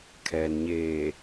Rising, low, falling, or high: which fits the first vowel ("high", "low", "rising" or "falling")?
low